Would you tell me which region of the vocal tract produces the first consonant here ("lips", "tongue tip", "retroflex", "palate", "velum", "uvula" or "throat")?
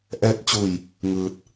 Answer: throat